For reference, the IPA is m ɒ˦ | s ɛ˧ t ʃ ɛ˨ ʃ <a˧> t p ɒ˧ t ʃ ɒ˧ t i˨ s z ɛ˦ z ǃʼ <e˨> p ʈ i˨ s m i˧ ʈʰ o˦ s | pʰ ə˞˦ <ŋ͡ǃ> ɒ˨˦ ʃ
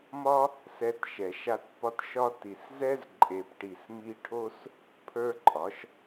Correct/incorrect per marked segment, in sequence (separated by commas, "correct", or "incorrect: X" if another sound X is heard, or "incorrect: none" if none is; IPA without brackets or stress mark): correct, correct, incorrect: ǃʼ